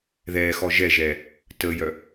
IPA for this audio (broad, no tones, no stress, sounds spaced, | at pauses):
ð ɛː x ɔ ʒ ɛ ʒ ɛː | t əː j œ